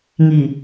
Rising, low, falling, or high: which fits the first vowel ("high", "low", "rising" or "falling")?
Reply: low